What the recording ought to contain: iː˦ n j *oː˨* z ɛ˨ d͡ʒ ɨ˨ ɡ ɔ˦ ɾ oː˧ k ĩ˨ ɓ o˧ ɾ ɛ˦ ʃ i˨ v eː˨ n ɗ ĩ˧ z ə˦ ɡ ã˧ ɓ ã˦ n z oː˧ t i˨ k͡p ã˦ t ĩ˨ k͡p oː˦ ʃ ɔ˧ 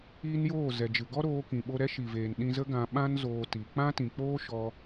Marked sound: incorrect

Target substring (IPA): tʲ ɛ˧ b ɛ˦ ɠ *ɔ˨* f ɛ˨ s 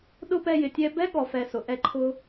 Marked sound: correct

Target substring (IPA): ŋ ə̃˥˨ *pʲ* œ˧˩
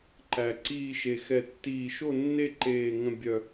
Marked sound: incorrect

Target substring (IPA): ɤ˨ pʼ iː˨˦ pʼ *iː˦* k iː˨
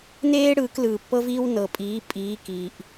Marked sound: incorrect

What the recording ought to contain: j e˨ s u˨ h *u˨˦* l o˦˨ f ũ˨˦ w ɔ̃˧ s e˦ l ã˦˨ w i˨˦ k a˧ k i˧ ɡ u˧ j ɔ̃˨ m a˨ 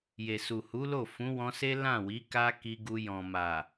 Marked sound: correct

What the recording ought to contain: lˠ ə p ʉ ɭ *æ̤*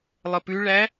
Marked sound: incorrect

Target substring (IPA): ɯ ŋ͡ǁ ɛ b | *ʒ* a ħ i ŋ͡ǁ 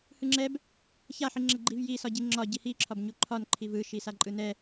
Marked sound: incorrect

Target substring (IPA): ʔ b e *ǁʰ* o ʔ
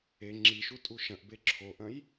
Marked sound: correct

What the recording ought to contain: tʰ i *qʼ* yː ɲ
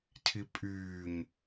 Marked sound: incorrect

